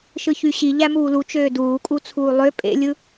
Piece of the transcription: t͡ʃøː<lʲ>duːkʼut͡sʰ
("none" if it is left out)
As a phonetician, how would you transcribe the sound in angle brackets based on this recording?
none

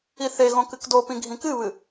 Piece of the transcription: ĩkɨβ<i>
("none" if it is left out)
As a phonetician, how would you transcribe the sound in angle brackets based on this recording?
ɨ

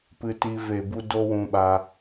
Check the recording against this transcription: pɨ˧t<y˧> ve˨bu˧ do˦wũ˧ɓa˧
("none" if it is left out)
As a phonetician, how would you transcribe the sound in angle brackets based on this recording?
i˧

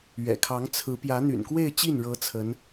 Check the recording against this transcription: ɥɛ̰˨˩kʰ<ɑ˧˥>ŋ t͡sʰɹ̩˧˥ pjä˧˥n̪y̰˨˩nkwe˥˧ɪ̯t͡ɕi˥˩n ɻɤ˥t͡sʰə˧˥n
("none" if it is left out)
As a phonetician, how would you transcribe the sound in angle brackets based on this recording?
ɑ˧˥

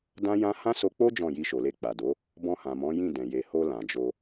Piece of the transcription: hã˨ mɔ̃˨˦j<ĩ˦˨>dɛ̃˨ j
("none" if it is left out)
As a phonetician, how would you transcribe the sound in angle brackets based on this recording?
ĩ˦˨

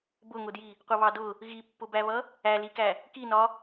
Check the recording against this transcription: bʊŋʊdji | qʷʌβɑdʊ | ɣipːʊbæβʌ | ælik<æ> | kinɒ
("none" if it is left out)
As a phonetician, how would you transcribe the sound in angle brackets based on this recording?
æ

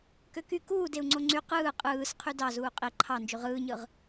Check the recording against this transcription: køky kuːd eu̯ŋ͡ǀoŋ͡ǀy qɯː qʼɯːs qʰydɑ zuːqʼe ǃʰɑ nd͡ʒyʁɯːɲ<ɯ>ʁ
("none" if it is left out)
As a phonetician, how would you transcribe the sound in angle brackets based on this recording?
ɯ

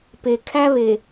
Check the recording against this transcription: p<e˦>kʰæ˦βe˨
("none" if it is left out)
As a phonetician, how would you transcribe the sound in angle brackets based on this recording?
e˨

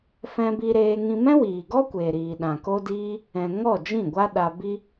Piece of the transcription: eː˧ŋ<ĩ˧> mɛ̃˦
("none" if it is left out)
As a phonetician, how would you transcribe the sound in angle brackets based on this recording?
ĩ˧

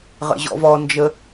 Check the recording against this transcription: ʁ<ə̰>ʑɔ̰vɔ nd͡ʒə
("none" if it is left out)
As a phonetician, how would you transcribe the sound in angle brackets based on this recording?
ə̰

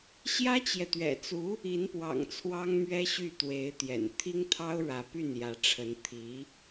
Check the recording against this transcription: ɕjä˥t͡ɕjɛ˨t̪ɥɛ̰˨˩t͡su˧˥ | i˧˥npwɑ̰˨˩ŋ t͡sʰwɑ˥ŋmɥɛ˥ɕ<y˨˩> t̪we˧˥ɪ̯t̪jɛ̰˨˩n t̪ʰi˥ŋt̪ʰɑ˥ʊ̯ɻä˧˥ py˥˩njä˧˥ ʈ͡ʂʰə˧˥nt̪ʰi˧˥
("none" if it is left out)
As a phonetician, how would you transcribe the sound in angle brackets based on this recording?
y˥˩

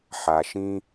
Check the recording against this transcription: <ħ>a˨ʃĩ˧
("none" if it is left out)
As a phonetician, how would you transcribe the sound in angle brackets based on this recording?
ħ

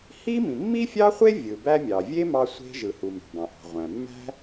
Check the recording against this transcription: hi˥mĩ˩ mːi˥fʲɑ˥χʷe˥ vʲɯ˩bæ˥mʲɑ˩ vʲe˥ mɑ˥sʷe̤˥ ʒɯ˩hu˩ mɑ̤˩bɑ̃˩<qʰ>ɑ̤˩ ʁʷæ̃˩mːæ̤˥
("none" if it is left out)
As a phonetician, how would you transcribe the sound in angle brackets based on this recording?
ʔ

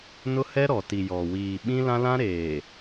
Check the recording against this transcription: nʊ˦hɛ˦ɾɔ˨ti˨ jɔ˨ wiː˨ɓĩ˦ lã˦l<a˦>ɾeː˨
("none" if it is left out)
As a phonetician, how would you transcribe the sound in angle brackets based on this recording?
ã˦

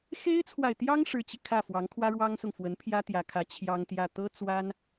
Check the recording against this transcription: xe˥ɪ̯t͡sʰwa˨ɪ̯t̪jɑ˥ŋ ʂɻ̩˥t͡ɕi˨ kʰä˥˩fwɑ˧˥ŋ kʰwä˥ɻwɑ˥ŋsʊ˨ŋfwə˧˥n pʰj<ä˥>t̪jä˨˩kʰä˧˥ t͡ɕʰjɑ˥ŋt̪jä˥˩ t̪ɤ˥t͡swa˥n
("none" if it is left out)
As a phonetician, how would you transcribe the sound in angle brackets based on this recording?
ä˥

